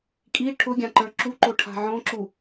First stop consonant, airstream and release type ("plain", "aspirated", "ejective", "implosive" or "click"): ejective